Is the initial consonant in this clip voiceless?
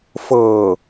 yes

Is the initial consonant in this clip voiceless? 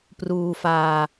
yes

